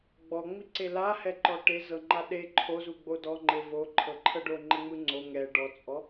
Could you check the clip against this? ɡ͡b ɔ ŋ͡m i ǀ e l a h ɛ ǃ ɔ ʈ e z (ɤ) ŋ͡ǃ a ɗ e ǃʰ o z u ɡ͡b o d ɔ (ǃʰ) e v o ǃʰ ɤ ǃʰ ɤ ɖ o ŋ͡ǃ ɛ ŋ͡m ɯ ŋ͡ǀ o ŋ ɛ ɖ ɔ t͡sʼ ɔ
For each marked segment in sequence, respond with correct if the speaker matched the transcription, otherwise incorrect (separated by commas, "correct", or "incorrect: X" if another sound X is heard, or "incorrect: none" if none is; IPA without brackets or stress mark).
correct, incorrect: ŋ͡ǃ